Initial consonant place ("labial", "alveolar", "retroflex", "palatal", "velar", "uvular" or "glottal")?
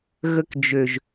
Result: velar